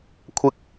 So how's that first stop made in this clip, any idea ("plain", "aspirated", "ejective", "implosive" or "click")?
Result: aspirated